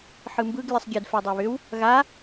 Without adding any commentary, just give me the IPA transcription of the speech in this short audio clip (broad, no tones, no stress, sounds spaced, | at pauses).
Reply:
ħ ɯ m b ɯ ɡ lʲ ɯ sˤ ɡʲ ə d f ɛ dˤ a β ʏ w | ɣ a